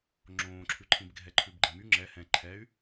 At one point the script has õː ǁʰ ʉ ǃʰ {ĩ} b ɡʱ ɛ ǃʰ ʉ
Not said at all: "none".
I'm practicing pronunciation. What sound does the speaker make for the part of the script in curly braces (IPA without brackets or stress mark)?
ĩ